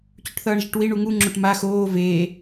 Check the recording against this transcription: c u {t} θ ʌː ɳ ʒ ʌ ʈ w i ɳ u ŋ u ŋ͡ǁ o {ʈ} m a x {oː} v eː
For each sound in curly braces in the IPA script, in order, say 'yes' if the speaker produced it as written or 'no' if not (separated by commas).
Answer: no, yes, yes